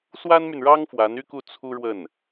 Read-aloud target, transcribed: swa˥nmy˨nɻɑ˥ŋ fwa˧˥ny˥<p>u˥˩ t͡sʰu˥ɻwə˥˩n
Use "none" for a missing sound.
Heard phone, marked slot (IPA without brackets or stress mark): k